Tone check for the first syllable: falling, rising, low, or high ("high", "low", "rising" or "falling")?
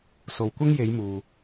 low